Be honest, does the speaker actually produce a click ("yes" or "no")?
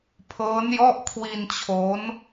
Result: no